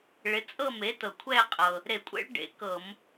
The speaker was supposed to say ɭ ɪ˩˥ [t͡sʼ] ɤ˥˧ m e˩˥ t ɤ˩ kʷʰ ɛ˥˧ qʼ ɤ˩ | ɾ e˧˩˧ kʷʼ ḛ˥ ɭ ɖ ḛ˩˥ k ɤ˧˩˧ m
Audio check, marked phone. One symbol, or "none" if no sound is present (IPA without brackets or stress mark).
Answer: t͡sʼ